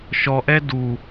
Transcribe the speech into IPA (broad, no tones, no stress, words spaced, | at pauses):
ʃɔʔɛ du